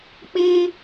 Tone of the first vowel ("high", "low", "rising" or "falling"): high